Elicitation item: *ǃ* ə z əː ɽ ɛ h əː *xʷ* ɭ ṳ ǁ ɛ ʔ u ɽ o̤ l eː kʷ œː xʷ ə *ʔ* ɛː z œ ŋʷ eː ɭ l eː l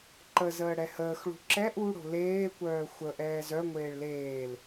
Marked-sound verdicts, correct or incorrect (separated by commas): correct, incorrect, correct